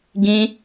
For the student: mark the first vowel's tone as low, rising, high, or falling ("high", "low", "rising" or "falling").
high